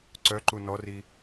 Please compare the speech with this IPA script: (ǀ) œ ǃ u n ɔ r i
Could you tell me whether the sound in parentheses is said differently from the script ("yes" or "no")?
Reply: no